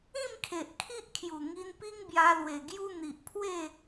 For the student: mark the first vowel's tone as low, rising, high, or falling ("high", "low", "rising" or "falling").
falling